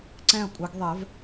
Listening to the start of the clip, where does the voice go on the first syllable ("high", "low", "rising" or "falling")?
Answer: falling